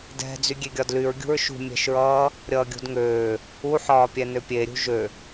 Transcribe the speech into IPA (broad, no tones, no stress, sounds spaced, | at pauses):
d ɛ̤ d͡z y ɡʲ e ɡʲ ɒ d l y ɹ ɡʲ ṳ ɹ ʃ ṳ mʲ ɛ̤ ʃ ɹ ʌː | ɾʲ ʌː ɡʲ ṳ d ŋ øː | u ħ ɒː pʲ ɛ n ø pʲ e ɾʲ ṳ ʒ ø